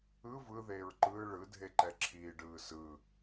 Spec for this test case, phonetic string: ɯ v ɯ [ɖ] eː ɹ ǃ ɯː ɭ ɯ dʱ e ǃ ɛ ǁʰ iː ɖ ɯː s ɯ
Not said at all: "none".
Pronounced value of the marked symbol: ð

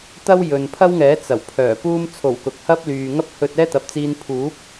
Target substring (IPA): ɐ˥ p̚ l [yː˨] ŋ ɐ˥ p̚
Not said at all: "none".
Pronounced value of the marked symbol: yː˨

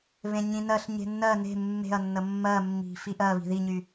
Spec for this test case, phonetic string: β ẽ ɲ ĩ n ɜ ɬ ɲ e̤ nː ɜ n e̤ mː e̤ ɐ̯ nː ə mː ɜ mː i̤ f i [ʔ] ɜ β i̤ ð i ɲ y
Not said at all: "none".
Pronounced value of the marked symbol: ʔ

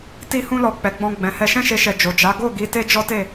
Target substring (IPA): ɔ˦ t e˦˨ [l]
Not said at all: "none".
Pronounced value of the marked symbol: none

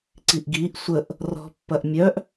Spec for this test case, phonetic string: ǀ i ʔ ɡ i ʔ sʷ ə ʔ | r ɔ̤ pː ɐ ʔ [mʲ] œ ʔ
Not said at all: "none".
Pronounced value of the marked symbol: mʲ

